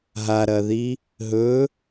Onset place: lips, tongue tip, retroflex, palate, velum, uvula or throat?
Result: throat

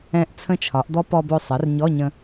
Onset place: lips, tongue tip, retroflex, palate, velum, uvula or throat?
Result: throat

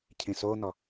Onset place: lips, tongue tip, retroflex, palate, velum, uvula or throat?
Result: palate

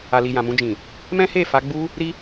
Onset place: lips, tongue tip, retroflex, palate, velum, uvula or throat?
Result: tongue tip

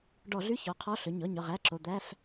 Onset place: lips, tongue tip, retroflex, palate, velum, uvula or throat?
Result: retroflex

